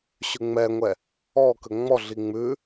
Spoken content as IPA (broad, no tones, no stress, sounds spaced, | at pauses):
ɕ ʉ ŋ͡m ɛ ŋʷ ɛ | ɔ k ə ŋ͡m ɔ ɮ i ŋ͡m ʉ